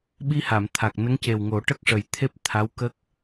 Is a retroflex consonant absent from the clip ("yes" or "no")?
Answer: no